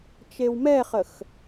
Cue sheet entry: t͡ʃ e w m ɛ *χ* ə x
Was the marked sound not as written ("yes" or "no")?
no